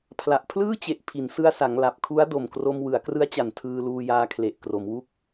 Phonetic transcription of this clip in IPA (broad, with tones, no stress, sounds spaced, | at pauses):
pʰ l a˨˩ ʔ pʰ l ɯː˥˩ t͡ɕ e˨˩ ʔ pʰ i˩˦ n s ɯ˧ a̯ s a˩˦ ŋ l a˨˩ p̚ kʰ u˦˥ a̯ d o˨˩ m k r o˧ m w ɯ˩˦ a̯ k r ɯ˦˥ a̯ t͡ɕ a˨˩ n tʰ ɯː˧ l uː˧ j aː˧ kʰ l e˨˩ ʔ k r o˩˦ m w u˦˥ k̚